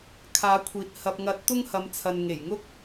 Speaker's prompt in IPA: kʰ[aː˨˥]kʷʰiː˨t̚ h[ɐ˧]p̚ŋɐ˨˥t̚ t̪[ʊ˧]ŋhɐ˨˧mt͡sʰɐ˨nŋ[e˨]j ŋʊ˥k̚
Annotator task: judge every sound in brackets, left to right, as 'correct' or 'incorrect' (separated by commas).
correct, incorrect, incorrect, incorrect